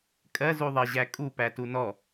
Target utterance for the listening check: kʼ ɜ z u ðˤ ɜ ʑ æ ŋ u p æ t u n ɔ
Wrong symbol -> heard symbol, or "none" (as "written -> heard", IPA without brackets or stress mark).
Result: ŋ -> kʼ